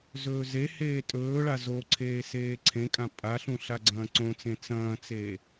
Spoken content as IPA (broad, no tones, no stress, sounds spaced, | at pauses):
z ɵː z e h eː tʼ ɵː ɭ a z o ǀʰ eː s eː ǀʰ ẽ kʼ ã pʼ a ɬ ũ ɬ a ɡ͡ǀ ɐ̃ː ǀ õ t͡s ẽ t͡s ɐ̃ː t͡s eː